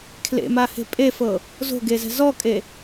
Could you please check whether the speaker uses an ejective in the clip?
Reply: yes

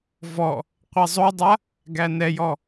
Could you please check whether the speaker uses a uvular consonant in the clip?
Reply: yes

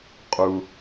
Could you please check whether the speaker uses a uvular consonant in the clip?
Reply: yes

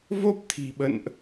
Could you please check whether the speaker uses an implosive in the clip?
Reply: yes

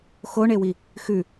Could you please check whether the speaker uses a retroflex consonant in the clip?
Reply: yes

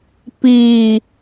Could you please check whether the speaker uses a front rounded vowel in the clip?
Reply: no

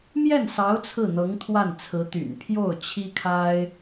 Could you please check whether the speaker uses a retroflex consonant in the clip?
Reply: no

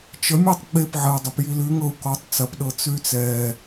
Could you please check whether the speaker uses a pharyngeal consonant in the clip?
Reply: yes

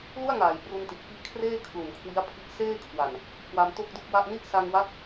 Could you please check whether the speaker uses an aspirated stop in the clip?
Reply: yes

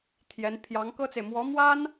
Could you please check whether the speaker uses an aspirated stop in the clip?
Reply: yes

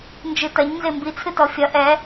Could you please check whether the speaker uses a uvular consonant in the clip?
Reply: no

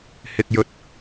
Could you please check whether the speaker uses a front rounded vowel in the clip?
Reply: no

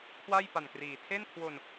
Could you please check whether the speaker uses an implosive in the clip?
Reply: no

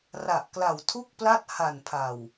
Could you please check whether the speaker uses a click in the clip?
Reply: no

